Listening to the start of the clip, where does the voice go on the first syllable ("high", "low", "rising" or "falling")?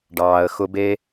low